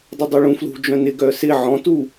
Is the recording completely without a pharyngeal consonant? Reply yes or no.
no